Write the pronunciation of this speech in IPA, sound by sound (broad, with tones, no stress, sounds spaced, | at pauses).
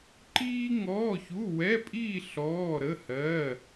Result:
ǃ iː˥ ŋ ɔː˧˥˧ ç u˧˥˧ w ɛ˧˥˧ pʼ iː˥˧ ɬ ɔː˧˥˧ ɾ ə˧˥˧ h ɜ˧˥˧